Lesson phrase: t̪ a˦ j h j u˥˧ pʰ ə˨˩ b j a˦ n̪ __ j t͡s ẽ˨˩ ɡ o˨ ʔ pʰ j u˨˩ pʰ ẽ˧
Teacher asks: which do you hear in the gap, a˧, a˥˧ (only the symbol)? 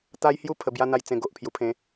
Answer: a˧